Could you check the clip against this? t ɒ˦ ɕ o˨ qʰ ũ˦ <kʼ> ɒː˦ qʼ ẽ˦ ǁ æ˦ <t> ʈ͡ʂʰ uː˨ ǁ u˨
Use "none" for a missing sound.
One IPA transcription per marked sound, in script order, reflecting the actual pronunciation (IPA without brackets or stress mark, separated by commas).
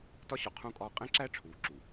kʼ, none